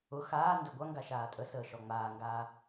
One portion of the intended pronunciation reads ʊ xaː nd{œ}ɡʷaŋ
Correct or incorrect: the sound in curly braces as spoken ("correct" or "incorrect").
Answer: correct